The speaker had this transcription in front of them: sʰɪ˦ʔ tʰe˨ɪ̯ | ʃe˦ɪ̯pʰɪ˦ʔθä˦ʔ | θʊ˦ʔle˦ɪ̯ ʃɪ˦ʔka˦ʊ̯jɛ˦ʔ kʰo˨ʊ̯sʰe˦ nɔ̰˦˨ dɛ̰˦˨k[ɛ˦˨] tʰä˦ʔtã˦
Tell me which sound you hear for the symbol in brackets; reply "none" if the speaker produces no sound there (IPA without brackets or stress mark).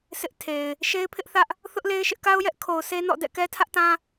ɛ˦